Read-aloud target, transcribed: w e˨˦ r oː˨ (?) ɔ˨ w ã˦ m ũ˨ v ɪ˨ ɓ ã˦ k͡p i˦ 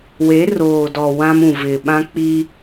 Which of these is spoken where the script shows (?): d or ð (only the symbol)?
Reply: d